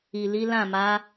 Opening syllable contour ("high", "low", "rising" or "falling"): low